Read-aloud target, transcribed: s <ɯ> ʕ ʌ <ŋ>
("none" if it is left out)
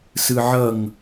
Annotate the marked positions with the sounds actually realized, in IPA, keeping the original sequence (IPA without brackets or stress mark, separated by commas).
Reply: ɯ, ŋ